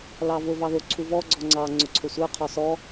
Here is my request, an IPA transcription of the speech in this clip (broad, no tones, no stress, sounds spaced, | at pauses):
l ɑ v ʊ v ɑ ð ʊ ǀʰ u v ɔ ɡ͡ǀ ɔ ŋ͡ǀ ɑ ŋ͡ǀ ʊ ǀʰ ʊ sʷ ə˞ qʰ ɔ s ɔ